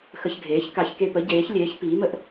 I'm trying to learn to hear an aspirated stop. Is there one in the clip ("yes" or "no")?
no